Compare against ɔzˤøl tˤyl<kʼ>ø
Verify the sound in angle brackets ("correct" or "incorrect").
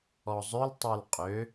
incorrect